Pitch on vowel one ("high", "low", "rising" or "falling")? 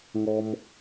high